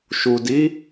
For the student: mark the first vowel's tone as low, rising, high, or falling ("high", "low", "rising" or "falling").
low